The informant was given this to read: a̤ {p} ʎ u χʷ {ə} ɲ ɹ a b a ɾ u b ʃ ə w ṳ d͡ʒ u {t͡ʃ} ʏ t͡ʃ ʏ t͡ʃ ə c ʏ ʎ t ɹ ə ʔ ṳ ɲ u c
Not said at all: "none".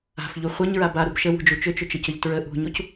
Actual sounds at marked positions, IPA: f, ə, t͡ʃ

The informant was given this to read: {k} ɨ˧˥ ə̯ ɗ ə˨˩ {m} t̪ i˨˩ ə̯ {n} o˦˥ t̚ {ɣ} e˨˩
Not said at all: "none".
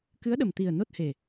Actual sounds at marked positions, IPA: k, m, n, h

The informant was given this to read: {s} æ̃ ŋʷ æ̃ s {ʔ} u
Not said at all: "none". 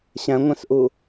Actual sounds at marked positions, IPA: ɕ, ʔ

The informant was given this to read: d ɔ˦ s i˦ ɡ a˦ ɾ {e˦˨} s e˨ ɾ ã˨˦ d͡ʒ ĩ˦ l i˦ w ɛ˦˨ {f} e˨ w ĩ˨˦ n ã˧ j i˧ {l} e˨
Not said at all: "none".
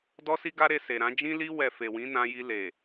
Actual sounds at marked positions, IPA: e˧, f, l

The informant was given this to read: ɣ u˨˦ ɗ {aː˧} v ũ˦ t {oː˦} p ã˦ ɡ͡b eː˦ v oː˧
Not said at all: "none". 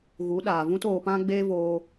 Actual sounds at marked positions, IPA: aː˨, oː˧

